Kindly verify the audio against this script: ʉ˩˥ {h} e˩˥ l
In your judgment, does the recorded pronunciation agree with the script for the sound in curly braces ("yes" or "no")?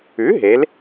no